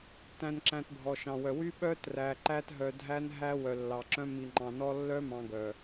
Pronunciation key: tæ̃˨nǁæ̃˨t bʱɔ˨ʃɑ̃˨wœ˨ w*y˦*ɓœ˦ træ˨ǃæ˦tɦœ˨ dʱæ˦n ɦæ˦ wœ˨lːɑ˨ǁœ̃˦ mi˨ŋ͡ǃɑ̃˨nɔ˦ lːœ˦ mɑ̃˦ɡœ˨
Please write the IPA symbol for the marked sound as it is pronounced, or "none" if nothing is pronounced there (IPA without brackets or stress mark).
y˦